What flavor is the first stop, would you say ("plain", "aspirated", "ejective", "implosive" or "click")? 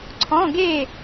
click